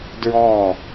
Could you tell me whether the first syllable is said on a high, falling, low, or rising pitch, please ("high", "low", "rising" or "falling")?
falling